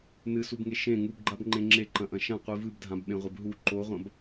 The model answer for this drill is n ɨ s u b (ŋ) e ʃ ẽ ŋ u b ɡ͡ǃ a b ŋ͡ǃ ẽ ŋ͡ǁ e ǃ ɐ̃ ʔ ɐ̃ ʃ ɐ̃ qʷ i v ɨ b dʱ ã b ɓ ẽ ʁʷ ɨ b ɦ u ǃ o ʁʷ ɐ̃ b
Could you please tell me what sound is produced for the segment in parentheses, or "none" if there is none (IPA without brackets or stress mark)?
ŋ